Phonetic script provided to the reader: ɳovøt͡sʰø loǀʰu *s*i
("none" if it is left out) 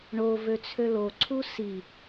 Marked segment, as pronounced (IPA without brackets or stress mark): s